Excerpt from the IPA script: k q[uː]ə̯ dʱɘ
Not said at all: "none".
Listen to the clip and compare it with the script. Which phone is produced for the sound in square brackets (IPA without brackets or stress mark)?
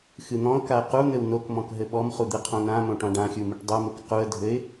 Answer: u